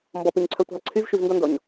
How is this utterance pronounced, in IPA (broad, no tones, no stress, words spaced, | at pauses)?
mbɔpʉɲǀʰœtʷæ̤lˠ ǀʰyvʃyvndɔndɔɲ